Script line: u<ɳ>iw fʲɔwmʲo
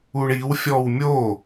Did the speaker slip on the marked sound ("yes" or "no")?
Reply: no